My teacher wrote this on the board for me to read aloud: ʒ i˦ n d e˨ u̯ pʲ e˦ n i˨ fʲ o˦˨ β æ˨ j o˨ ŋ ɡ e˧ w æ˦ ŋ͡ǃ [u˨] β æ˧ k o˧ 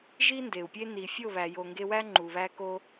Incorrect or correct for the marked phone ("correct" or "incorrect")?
correct